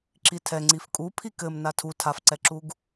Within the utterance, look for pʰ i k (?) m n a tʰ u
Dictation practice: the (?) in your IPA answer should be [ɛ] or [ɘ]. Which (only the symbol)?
ɘ